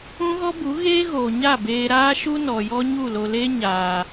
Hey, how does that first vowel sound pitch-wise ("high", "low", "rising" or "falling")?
high